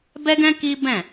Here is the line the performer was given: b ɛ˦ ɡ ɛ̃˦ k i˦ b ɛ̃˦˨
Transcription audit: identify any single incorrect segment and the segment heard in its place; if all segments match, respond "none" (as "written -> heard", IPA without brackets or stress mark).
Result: none